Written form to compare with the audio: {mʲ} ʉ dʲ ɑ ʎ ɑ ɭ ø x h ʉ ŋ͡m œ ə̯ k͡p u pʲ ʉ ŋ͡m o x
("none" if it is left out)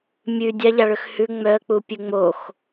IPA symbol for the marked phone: mʲ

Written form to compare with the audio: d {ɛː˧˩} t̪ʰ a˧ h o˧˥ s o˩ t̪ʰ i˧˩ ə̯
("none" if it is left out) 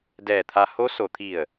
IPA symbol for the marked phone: ɛː˧˩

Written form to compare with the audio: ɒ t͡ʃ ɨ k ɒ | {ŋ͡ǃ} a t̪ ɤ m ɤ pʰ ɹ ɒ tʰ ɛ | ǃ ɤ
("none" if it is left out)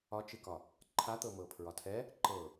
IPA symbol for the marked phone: ǃʰ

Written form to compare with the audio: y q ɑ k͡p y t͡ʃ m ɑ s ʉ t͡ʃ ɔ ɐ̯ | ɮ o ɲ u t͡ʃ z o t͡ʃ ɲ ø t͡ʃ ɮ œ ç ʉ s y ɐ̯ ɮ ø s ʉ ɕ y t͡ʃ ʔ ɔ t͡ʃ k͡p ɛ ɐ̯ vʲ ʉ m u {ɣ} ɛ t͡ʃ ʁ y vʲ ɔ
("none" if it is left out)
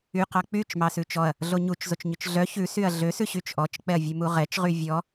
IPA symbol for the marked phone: ʁ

